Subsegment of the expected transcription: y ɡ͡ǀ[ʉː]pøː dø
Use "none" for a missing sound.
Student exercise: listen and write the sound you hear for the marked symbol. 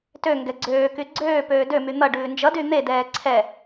øː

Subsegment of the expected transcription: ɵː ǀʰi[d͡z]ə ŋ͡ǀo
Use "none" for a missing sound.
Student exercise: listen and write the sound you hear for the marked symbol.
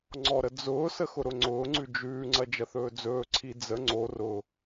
d͡z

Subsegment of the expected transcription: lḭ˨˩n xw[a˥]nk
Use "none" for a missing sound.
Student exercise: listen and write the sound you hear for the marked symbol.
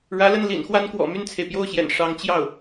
a˥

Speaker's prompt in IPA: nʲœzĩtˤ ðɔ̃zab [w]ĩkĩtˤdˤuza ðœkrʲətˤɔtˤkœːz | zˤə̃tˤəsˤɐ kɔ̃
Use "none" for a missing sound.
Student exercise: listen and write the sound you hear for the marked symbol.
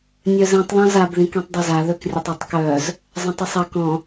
ð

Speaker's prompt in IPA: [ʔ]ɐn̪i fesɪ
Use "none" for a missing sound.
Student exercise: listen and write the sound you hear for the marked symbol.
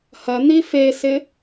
h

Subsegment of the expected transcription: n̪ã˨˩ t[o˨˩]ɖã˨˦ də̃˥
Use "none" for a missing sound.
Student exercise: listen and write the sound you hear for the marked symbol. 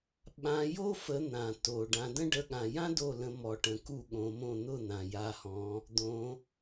o˨˩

